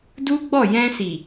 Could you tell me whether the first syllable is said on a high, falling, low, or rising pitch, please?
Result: high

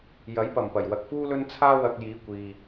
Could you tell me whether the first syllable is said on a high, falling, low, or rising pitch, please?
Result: rising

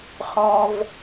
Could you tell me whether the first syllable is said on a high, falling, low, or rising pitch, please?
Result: high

